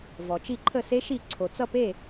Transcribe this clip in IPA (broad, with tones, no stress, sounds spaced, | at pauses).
v ɔ˩ t͡ʃ i˥˩ ǃʰ ə˥˩ s e˥ ʃ i˥˩ ǀʰ o˩ t͡s ʌ˥˩ p e˥˩